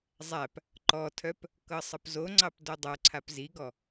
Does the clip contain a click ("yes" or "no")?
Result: yes